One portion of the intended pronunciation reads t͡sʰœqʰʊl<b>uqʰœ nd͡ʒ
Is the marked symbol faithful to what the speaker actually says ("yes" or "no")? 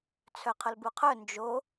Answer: yes